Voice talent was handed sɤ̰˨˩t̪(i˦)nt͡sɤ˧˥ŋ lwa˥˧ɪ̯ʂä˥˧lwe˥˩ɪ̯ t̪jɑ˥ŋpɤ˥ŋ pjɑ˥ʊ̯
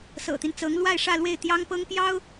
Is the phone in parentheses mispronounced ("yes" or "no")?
no